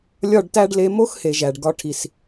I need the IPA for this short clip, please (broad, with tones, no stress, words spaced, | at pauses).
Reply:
lʲɒ˦˨ɖtæ˦ɖ le˧mo˦xhe˨ ʒæ˨ɖɡɒ˧ ʈʰi˨s